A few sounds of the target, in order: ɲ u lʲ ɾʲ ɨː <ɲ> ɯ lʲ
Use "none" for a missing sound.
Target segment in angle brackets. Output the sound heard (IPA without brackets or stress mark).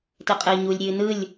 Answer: n